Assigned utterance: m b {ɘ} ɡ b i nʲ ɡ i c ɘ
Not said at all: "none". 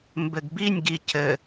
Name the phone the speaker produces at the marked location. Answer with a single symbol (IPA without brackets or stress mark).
ɘ